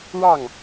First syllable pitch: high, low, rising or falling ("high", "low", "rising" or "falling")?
falling